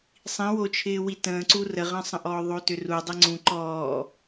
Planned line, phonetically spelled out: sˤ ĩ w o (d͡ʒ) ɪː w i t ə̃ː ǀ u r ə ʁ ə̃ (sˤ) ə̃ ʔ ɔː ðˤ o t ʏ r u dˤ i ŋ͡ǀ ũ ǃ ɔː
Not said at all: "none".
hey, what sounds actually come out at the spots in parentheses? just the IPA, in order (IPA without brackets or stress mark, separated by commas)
t͡ʃʰ, sˤ